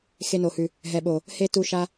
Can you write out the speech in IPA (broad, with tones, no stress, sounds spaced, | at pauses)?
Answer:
x e˧ n o˨ h ʉ˨ | ɦ ɛ˨ ɓ o˨ | h e˦ t u˧ ʃ a˧